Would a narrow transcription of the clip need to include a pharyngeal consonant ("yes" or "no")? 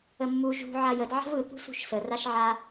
yes